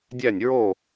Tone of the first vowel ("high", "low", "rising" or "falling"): falling